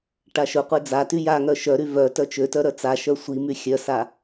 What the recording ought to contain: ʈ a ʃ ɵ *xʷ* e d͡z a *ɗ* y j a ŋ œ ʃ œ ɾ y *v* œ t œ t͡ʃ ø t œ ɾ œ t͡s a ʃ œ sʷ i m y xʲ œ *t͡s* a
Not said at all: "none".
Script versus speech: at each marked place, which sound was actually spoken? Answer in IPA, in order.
qʷ, t, v, s

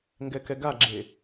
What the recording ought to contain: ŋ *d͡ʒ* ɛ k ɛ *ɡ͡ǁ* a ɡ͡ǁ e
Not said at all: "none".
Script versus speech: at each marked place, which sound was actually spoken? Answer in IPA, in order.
ɡ, ɡ

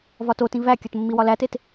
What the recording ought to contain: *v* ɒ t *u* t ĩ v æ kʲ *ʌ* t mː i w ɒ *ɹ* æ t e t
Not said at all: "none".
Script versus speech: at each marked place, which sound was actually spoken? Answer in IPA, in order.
v, o, ɒ, l

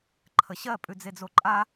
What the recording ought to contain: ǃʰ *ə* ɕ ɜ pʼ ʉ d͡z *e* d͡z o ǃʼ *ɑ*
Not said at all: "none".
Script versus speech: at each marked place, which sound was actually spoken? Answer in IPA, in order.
ə, e, a

